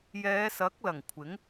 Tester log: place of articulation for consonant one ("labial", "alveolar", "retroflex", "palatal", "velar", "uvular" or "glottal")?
palatal